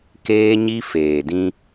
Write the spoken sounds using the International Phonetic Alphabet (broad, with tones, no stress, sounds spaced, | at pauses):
k eː˦ ɲ i˦ f eː˨ d ĩ˦